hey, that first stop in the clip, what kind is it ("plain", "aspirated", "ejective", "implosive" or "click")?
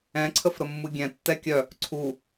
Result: click